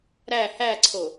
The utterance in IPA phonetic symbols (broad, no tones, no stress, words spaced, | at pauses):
ɾæ hæǀʰo